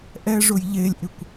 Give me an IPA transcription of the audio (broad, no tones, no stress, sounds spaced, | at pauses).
ʔ ɛ ʐ ʊ j ʎ e lʲ ʔ ɪ kʷ